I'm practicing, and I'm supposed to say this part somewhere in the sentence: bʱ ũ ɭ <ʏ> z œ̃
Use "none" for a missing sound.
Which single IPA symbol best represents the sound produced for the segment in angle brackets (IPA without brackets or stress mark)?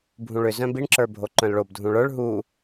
ʏ